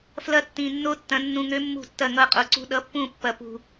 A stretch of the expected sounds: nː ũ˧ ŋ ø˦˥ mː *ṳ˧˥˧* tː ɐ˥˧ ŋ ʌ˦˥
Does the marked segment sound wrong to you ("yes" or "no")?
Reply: yes